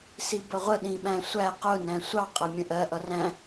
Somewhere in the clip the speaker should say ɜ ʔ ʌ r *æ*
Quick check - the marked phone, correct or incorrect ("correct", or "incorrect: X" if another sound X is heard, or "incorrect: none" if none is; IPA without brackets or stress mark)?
incorrect: æ̃